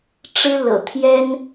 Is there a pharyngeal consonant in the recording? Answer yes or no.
no